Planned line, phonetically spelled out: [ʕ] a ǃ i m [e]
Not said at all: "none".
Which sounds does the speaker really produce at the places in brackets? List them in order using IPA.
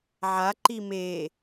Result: ʕ, e

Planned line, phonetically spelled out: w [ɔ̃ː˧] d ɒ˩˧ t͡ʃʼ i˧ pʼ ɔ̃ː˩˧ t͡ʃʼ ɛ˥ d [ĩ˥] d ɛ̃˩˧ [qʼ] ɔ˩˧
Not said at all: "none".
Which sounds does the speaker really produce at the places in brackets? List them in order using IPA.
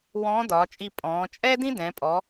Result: ɔ̃ː˧˥, ĩ˥, pʼ

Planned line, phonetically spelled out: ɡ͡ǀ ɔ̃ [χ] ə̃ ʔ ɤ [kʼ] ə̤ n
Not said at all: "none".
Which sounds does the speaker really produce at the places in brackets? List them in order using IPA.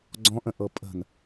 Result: ʔ, pʼ

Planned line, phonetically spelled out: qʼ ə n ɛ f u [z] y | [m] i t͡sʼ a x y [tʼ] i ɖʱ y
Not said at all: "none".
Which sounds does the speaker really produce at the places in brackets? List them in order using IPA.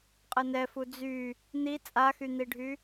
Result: d͡z, n̪, n̪

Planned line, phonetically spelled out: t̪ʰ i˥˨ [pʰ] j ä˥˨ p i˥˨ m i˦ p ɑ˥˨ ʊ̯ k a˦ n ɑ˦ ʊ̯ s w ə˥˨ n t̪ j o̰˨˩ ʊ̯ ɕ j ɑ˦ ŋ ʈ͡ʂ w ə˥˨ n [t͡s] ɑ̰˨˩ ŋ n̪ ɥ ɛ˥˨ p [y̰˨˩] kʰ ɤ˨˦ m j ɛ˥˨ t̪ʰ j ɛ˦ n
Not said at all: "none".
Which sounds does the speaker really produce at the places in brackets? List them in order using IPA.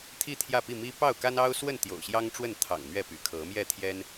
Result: t̪ʰ, t̪ʰ, y̰˨˩

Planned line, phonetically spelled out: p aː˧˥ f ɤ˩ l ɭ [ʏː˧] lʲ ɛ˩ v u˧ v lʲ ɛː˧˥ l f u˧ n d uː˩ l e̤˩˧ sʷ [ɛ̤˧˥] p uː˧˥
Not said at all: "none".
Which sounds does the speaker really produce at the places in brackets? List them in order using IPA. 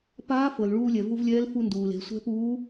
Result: uː˧, ɛ̤˧˥

